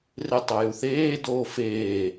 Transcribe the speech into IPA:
r e tˤ o j u θ eː d oː f eː

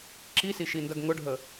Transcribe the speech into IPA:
ǁ i s i ʃ i n d ɐ ɡ ŋ ʊ ɖʱ ə

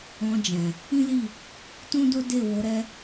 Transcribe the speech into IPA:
ɔ̃˧ d͡ʒ ɛ̃˨ | ĩ˦ l i˦˨ | t ũ˦ d o˦ d e˦˨ w o˨˦ ɾ ɛ˦

